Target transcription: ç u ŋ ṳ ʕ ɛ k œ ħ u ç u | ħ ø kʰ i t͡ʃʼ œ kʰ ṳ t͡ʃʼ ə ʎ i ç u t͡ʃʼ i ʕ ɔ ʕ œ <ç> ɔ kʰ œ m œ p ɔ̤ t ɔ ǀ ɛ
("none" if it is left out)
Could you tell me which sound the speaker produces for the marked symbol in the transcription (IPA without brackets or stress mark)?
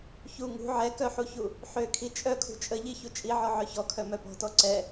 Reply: ç